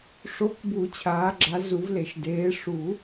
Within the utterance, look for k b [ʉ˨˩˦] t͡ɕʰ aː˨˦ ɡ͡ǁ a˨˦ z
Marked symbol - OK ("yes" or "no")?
no